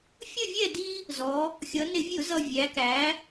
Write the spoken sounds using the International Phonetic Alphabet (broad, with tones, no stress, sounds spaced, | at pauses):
fʲ ə˥˨ vʲ ɛ˥˨ d i˦ | z ɔ˩˧ | xʲ ʌ˩˧ n ɪ˧˩˧ vʲ ʊ˧˩˧ z ʌ˨˩ vʲ æ˩˧ k æ˩˧